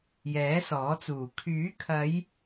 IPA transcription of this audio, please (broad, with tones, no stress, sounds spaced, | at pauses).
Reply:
j ɛː˨˥ s ɔː˨˥ t͡s uː˨˩ kʰ yː˨˥ kʰ ɐ˨˧ j